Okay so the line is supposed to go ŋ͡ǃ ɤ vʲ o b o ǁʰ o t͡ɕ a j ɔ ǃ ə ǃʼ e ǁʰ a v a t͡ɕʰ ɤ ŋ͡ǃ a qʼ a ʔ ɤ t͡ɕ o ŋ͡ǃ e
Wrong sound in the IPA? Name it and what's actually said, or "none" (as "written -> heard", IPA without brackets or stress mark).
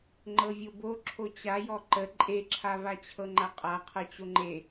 ʔ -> qʰ